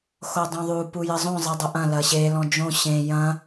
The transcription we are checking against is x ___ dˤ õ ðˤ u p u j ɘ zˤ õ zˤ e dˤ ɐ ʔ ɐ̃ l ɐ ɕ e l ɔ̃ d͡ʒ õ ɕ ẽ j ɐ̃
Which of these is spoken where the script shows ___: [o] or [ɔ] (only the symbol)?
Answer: o